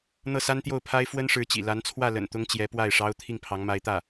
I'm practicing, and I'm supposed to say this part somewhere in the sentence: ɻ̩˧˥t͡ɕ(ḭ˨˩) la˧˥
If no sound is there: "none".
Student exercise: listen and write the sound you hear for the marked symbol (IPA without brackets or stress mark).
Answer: ḭ˨˩